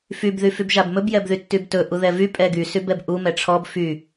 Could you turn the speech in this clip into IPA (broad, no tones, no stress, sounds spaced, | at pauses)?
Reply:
f y b ð y f y b ʒ a b m ɵ b j ɛ b ð y tː y b t ɵ ʔ u ð ɛ v y pʼ ɛ ɡ y s y b ɛ b ʔ u m ɛ ʈ͡ʂʰ ɔ b f y